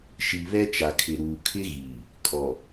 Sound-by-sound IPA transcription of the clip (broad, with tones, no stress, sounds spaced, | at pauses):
ʃ i˨ β ɛ˦ t͡ʃ a˨ kʰ ɪ˨ ɾ uː˨ kʰ ɪ˦ ɣ iː˨ | kʼ ɔ˨